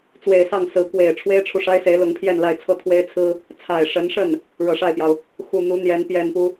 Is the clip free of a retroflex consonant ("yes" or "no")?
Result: no